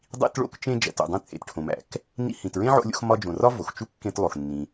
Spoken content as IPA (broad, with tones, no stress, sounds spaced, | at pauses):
dˤ ḭ˧ t ɭ o̰˧ k t͡ʃ ẽ˧ d͡ʒ æ̰˩ t o̰˩ dˤ ẽ˧ t͡sʼ ḛ˩ t ʈʰ õ˩ m æ̰˩ k | n ḭ˧ h ĩ˩ t ɹ ẽ˥ ʕ o̰˧ lʲ o̰˧ x m ɒ˧ d͡ʒ õ˩ r ɒ˥ v o˩ x t͡ʃ u˥ kː ẽ˧ t lˠ o˩ x nː ĩ˩